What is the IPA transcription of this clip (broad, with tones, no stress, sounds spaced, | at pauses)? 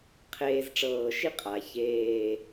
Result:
qʰ eː˧ z ʈ͡ʂ ɤː˧˩ ʃ i˥ qʼ a˩˧ ç eː˥˧